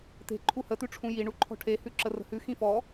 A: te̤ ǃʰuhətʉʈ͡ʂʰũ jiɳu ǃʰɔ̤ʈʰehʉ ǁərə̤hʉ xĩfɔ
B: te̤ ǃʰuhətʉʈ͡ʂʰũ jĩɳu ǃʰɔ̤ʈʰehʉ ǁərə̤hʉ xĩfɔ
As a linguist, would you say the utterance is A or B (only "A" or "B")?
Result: A